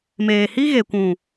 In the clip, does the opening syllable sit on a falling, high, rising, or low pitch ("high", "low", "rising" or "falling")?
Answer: low